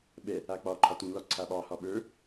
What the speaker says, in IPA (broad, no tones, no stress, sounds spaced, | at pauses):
ɓ ɛ | a k͡p ɒ ǃʰ ɒ t ũ l ɒ ǀʰ a ɓ ɑ h ɒ ɓ ə˞